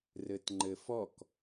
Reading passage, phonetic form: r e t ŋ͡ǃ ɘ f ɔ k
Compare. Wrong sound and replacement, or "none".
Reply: e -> ɘ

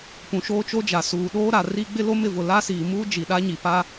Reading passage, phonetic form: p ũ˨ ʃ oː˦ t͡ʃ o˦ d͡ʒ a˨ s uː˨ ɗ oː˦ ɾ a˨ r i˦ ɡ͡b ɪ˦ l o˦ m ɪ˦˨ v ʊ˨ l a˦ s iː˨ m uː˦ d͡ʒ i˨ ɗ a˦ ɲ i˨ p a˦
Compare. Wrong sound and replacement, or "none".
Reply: none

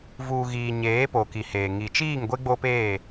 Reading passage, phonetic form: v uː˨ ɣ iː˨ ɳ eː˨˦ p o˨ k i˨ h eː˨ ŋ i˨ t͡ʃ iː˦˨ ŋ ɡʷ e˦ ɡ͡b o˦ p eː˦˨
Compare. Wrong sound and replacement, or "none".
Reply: ɳ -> ɲ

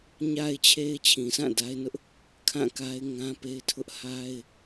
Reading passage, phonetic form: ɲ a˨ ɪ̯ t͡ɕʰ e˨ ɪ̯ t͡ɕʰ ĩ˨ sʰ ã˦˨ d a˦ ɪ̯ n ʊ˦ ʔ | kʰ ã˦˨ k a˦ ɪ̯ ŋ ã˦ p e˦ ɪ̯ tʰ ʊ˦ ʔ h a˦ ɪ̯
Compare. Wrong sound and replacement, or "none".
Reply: none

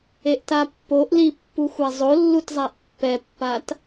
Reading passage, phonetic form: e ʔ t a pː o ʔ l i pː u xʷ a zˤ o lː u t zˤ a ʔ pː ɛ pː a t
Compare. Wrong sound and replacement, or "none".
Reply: none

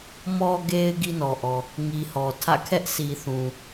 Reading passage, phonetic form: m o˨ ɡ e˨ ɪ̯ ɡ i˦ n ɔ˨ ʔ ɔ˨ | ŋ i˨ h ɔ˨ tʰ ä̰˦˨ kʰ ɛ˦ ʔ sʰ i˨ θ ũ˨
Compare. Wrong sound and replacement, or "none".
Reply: o˨ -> ɔ˨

